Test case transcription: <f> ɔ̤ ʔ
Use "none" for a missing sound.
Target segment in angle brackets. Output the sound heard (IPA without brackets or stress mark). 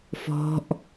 f